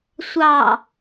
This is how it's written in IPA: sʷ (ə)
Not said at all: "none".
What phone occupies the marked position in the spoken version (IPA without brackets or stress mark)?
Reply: ɑ